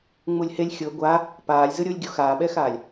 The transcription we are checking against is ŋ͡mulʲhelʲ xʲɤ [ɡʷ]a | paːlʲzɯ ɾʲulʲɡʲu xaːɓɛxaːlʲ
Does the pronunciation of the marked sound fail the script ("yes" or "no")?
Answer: no